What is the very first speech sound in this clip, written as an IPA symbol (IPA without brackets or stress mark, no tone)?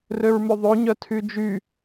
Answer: r